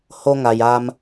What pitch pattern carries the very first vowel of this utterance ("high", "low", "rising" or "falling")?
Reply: high